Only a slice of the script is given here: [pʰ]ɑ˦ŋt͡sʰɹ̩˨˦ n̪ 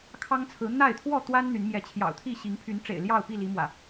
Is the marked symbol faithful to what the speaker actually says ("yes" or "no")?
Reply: no